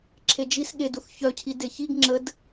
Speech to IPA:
ǁʰ e d͡ʒ i s ɠ e d u θ ç œ cʰ i d e ç i ɡ ŋ͡ǁ ə d

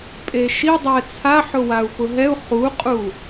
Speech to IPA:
pʼ e ʃ i dˤ ɛ t͡sʰ a ħ ʊ w a u̯ p ʊ ɦ ɛ u̯ χ u qʼ u

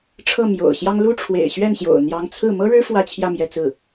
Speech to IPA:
ʈ͡ʂʰ ɤ˥˩ m j o̰˨˩ ʊ̯ ɕ j ɑ˥ ŋ l u˥ ʈ͡ʂʰ w ḛ˨˩ ɪ̯ ɕ ɥ ɛ˥˩ n ɕ j o̰˨˩ ʊ̯ n̪ j ɑ˧˥ ŋ t͡sʰ ɹ̩˥˩ m ɤ˥ ɻ ɻ̩˥ f w ä˥˧ t͡ɕʰ j ä˥˧ m j ɛ˥˧ t͡s ɹ̩˥˩

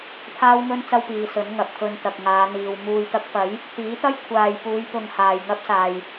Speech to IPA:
t̪ʰ aː˥ w ŋ ɵ˥ n t͡s ɐ˥ w p iː˨˧ s ɵ˨˥ n ŋ ɐ˨˥ p̚ k ɵ˧ n t̪ ɐ˨ k̚ ŋ aː˨˧ n̪ iː˨ w m uː˨ j t̪ ɐ˧ k̚ p ɐ˨˥ j | t̪ iː˨˥ t̪ ɐ˥ j kʷʰ aː˨ j p uː˨˧ j t̪ ʊ˨ ŋ h aː˨ j ŋ ɐ˥ p̚ s aː˨ j

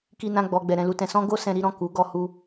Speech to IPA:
k i˧ n ã˧ ɡ͡b ɔ˨ ɡ͡b ɛ˨ ɾ ɛ̃˧ l u˧ t ɛ̃˧ s ɔ̃˦ ɡ o˦ s ɛ̃˧ ɾ i˦ ɾ ɔ̃˦˨ k u˨˦ ɡ ɔ˧ h u˧

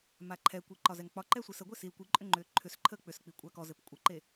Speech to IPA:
m a ǃʰ ɛ kʷ i ǃ ɒ z ɛ ŋ k͡p ɒ ǃ ɛ sʷ i s ə ɡʷ e s i l kʷ i ǃʼ ʏ ŋ͡ǃ ʏː ǃʰ ʏ s ǃʰ əː k͡p ʏ s k͡p i kʷʼ a k ɔ z ɘ p kʷʼ ə ǃ e

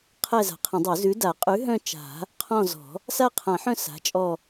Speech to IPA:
qʰ æ˦˨ z a̤˨˩˦ qʰ ə̃˨˩˦ dˤ œ˨˩˦ z ʉ˨˥ d a˨˩˦ qʼ ʉ˨˥ ɦ œ̃˦˨ t͡ʃ a̤˨˩˦ | qʰ ɔ̃˦˨ z ɔ̤˨˩˦ | s a˦˨ qʰ ã˨˩˦ ħ œ̃˦˨ s a̤˨˥ t͡ʃʼ ɔ˦˨

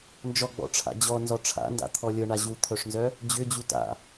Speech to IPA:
n d͡ʒ ɔ ɡ͡b ɔ̰ ʈ͡ʂʰ a̰ d͡ʑ ɔ n z ɔ ʈ͡ʂʰ a̰ n d a̰ t̪ʰ ɔ lʲ ɤ ɳ a ʑ u t̪ʰ œ ʂ n z œ | d͡ʑ ʏ d͡ʑ u t a̰

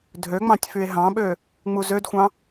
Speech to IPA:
dʱ ø ŋ͡m ɑ̃ tʲ f y e̯ ɦ ɑ̃ ɓ ø | ŋ͡m u z ø d xʷ ɑ̃

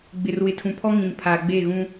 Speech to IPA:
ɡ͡b ɪ˨ r w ɪ˨ tʰ ũ˨ pʰ ɔ˦ ŋ ĩ˨ n pʰ aː˨ ɡ͡b eː˦˨ ɣ ũ˦

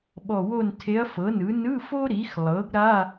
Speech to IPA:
ɓ ɔ˨˩ w o˦˨ n tʰ e˧˥ ɐ̯ f ɤ˩˥ n ɯ˩˥ n ɯ˧˥˧ f o˥ ɾ i˩˥ x lˠ ɤ˩˥ ɡ ɾ a˧˥˧

